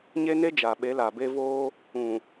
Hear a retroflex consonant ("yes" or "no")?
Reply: no